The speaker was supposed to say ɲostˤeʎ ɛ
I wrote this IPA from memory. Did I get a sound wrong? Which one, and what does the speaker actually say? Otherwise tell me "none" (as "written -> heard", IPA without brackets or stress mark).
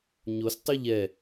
e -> y